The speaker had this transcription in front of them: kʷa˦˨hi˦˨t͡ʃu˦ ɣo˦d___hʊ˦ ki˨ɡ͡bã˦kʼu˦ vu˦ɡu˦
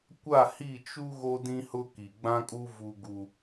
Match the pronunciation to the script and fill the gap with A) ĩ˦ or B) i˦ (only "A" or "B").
A